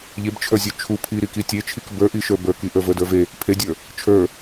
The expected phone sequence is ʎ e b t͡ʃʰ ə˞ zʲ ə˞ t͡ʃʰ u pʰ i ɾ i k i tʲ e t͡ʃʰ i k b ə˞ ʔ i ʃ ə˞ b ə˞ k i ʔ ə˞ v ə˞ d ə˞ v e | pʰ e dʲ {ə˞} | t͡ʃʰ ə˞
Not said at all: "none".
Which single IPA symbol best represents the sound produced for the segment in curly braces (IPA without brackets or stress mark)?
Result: ə˞